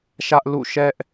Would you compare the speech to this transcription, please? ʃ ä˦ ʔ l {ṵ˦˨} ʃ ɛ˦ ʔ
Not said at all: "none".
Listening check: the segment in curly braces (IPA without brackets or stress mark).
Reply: ṵ˦˨